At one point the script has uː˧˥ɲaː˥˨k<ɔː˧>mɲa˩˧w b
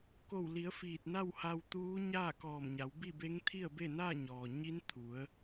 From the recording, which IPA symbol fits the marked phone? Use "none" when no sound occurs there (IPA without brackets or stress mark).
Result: ɔː˧˩